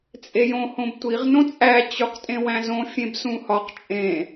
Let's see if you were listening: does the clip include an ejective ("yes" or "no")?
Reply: yes